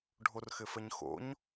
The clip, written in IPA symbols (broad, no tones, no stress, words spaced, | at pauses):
ɖʱorxɘfəɲxo̰ɲ